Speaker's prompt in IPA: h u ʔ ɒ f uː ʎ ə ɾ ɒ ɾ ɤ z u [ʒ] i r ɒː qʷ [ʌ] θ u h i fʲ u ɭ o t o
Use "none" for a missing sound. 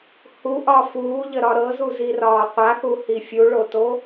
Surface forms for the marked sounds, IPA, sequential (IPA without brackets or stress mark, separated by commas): z, a